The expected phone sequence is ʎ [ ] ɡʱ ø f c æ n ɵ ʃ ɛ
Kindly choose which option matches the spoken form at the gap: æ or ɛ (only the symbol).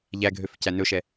æ